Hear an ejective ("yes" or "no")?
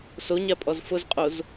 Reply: yes